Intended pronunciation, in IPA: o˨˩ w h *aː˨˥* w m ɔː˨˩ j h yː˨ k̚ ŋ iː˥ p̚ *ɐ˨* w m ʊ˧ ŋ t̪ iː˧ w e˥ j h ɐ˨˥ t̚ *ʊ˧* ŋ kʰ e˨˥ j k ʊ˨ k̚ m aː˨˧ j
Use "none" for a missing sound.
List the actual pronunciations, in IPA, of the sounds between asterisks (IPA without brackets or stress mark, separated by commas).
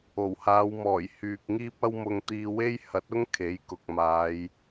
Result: aː˨˧, ɐ˥, ʊ˥